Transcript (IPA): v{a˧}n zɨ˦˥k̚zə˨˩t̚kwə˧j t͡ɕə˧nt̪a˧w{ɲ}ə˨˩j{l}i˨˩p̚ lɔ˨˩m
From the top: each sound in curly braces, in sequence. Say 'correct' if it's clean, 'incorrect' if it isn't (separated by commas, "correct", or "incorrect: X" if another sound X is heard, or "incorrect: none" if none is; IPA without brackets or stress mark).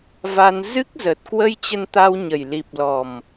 correct, correct, correct